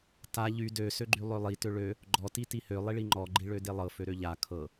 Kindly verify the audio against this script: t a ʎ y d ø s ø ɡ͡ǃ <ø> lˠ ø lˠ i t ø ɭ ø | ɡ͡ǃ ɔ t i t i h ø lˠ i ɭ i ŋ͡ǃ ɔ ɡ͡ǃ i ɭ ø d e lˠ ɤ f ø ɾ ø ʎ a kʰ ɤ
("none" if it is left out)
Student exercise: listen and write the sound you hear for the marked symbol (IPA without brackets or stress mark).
y